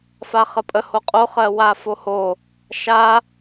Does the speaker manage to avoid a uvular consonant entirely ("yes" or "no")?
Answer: no